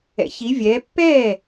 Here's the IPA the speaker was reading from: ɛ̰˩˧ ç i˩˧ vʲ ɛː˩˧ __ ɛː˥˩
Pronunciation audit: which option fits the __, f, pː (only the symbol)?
pː